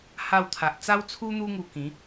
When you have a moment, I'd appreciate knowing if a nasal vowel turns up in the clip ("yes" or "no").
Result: yes